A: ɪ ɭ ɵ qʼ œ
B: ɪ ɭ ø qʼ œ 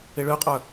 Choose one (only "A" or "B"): B